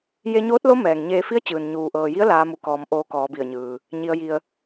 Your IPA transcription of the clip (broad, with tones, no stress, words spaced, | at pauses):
je˧ɲoː˧˥t̚lo˧˥ mɛː˩ŋɲeː˧fi˧˥ə̯t͡ɕɯː˩n ɲuː˩ʔɤː˩ji˧˥ə̯ laː˧˥mu˧kɔː˧m ʔoː˧kɔː˩˧bi˧˩ə̯ɲɯː˩ | ɲi˧ə̯ ji˧ə̯